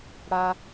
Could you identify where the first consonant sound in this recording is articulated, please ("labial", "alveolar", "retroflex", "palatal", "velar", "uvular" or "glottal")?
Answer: retroflex